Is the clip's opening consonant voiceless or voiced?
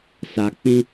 voiceless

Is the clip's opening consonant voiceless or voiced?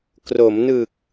voiceless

